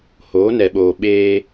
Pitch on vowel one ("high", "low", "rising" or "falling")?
rising